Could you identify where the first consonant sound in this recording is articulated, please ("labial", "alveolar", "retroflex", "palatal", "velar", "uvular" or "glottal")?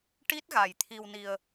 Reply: retroflex